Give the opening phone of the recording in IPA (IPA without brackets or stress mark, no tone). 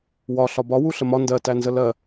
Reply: w